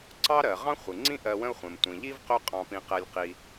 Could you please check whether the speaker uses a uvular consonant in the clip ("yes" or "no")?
yes